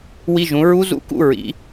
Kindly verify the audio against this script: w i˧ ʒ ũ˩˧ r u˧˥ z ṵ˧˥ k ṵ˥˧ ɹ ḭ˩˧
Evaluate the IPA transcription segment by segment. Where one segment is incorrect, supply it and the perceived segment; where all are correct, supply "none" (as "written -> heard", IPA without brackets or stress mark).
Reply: r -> ɹ